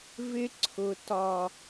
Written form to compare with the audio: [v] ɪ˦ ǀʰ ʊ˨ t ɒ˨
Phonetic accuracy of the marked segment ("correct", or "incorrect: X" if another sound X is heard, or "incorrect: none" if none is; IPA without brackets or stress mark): correct